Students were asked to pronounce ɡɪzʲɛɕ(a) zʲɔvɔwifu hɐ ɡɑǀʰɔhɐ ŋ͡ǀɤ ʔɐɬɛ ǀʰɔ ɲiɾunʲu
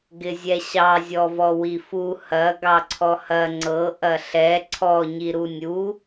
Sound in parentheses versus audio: incorrect: ɑ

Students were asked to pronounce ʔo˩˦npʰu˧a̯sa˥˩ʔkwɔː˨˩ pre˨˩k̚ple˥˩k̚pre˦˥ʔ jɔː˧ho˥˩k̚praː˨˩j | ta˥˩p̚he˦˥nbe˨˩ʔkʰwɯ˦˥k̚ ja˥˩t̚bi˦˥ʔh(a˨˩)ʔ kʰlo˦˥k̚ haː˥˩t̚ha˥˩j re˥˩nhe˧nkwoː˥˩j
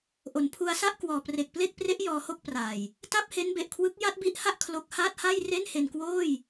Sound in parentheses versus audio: incorrect: a˥˩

